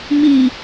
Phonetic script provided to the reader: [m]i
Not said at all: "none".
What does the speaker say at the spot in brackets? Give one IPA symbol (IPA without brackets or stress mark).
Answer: m